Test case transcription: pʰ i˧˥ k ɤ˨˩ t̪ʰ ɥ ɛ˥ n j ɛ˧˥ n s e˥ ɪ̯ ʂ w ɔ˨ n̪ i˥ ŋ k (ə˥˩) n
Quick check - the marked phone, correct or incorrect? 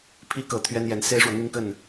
correct